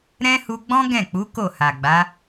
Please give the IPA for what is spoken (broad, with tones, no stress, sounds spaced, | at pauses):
ɾ ɛ̃˦ h u˧ ɡ͡b ɔ̃˦ ɡ ɛ̃˦˨ k͡p u˨˦ k o˦˨ h a˨ ɡ͡b a˨˦